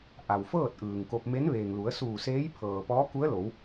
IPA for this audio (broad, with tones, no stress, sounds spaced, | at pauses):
ʔ a˩ w f ɤː˥˨ t̚ ʔ ɯː˩ ŋ k o˧ p̚ m e˧˥ n ʋ eː˩ ŋ l u˩˧ ə̯ s uː˧˩ s eː˧˥ j pʰ ɤː˩ p ɔː˧˥ k u˧˥ ə̯ l o˩˧ w